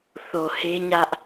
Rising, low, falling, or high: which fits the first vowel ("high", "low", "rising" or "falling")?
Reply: low